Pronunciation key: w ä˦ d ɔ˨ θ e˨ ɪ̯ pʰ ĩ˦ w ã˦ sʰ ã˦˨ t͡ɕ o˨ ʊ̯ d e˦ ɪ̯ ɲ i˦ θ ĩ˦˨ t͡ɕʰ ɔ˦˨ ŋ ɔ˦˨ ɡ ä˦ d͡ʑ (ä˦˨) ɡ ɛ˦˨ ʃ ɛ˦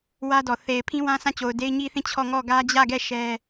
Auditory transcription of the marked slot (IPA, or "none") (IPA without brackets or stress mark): ä˦˨